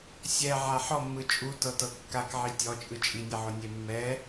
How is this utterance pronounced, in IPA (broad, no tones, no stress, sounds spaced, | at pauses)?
sʲ ɛ ʕ a ħ ɔ mː ɯ t͡ʃʼ u t ɤ t ɤ kː a k ʕ i tʲ ɔ t͡ʃʼ ɯ t͡ʃʼ i nʲ ɛ ʕ o nʲ e mː ɛ